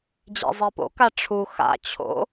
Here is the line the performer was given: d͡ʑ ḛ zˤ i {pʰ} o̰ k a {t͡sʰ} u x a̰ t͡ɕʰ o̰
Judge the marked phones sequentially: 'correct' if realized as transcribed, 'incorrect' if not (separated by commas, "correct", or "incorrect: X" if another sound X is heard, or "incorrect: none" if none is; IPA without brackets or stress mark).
incorrect: p, incorrect: ʈ͡ʂʰ